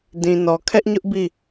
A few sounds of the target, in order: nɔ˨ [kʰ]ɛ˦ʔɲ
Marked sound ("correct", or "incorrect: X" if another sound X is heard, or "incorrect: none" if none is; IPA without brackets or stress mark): correct